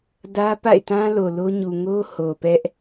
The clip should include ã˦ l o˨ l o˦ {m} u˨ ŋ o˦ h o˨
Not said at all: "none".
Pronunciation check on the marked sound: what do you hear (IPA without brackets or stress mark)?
ɲ